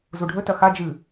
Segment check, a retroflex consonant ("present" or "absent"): present